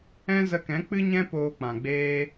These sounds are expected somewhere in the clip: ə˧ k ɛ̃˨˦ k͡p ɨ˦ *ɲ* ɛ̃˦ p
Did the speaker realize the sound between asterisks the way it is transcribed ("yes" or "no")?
yes